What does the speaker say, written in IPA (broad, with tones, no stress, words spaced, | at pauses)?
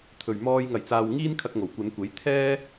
t̪ʰɵ˨˩ɥmɔː˧j ŋɐ˨˩jt͡saː˨wŋiː˥n kʰɐ˧k̚ŋo˨˩wkʷɐ˨˧nkʷe˨˥j t̪ʰɛː˥